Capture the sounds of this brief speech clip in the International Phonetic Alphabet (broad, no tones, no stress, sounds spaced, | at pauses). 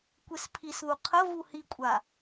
kʷ e s pʰ i s ð u qʰ ə v u h i kʷʼ a